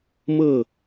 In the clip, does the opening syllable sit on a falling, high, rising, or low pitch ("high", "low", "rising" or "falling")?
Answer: falling